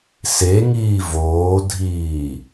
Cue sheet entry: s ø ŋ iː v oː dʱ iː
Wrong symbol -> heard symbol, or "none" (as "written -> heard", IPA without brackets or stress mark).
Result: ø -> e